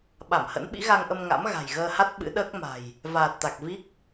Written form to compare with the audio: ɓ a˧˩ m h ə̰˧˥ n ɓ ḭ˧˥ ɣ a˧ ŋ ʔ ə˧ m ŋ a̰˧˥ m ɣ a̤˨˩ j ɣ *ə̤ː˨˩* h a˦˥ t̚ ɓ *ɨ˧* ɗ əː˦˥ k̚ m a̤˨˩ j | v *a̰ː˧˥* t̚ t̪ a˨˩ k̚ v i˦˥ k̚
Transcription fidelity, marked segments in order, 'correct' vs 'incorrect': incorrect: əː˧, incorrect: ɨ̰˧˥, incorrect: aː˨˩

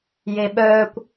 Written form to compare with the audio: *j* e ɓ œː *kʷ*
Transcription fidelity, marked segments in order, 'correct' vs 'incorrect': correct, correct

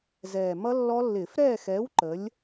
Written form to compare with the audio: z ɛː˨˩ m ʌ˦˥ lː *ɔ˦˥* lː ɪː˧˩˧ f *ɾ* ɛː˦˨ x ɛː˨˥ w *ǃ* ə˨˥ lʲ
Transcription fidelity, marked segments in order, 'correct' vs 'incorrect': correct, correct, correct

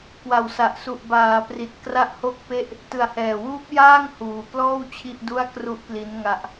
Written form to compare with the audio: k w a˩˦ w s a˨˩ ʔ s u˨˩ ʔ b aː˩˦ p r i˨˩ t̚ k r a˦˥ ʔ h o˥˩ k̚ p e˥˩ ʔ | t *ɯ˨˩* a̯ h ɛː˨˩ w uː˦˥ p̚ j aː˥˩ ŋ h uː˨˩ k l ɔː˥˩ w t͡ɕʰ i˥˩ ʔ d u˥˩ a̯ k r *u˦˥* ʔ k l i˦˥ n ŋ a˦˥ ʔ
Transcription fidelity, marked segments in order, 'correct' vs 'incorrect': correct, correct

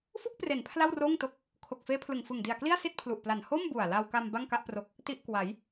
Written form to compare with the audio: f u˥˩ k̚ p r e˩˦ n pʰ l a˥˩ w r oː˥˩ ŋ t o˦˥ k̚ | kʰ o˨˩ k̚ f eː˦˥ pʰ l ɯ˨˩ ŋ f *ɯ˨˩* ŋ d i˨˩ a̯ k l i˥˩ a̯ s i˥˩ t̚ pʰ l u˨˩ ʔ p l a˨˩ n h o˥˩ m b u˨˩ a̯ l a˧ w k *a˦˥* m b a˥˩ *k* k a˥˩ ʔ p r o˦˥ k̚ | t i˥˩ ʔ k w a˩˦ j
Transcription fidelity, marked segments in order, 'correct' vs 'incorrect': correct, incorrect: a˧, incorrect: ŋ

